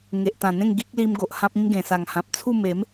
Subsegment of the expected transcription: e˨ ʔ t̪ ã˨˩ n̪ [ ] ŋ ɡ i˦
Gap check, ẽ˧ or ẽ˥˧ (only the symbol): ẽ˥˧